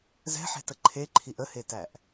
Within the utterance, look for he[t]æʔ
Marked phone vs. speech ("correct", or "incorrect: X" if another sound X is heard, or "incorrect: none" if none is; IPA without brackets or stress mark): correct